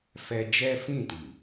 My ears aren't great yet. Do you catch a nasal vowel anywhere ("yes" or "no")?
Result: yes